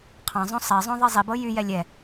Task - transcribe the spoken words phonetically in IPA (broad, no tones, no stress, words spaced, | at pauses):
qʰɑ̃zˤõ sˤɛzˤõ ðˤizˤibɤ jyjɛ lʲɛ